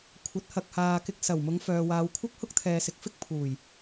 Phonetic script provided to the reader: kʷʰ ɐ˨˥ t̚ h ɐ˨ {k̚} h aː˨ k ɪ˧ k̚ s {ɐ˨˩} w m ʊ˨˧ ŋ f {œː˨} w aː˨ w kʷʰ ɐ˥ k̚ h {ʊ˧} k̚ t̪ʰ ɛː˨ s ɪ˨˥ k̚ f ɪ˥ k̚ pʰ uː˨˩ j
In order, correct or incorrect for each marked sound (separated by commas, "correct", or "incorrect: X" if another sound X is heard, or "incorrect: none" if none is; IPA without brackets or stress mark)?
correct, correct, correct, incorrect: ʊ˥